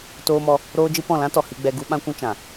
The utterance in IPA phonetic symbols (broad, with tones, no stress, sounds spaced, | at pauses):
t oː˧ m ɔ˧ | ɾ oː˦ d͡ʒ ɨ˦ p ɔ̃˦˨ l ã˦ t ɔ˨ h i˧ ɡ͡b ɛ˧ ɡ u˦ ɓ ã˦ kʷ ũ˦ t͡ʃ ã˨